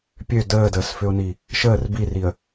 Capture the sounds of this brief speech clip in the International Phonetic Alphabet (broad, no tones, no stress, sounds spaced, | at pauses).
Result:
pʲ ø d əː d əː s f ʏ ʊ̯ n i | ʃ əː r b i r i ə̯